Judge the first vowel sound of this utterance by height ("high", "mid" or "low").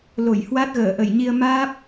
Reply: mid